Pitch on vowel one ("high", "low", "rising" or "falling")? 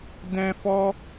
high